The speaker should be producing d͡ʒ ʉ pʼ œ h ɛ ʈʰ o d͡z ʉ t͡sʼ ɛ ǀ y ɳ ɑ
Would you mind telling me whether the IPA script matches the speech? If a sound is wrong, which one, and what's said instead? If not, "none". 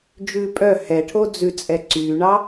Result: none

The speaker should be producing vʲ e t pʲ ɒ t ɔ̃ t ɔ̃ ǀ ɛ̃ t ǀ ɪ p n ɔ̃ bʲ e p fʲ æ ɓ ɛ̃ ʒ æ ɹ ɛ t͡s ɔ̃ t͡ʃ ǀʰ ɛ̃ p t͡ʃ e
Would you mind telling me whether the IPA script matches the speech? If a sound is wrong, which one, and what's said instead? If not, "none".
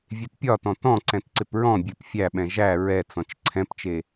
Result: n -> ɹ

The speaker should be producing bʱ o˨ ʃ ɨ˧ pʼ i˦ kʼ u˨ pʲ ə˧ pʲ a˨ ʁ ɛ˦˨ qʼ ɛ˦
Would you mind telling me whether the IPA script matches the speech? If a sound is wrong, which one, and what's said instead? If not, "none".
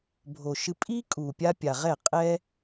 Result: ə˧ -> a˧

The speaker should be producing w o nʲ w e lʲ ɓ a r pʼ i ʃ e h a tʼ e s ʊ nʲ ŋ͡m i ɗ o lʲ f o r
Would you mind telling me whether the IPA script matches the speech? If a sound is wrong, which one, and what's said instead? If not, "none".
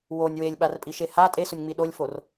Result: none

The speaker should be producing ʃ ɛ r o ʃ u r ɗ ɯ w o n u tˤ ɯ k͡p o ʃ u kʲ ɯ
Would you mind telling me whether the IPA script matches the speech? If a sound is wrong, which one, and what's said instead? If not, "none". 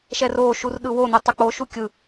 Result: none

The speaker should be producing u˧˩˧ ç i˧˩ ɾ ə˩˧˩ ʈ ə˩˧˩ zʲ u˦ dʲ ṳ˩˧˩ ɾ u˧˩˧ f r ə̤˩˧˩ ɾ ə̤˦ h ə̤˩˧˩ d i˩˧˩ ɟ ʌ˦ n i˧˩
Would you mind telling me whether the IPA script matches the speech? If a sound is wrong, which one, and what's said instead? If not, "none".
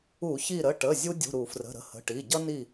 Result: d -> ʈ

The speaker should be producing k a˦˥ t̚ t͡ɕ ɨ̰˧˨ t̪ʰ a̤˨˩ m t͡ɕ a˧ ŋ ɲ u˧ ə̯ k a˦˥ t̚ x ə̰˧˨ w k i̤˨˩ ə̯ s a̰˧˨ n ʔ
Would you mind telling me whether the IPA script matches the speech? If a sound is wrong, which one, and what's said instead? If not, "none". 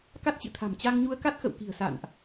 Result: none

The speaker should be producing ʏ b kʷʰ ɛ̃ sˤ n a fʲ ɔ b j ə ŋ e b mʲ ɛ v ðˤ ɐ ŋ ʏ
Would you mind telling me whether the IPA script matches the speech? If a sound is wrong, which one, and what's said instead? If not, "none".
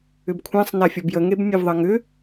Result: none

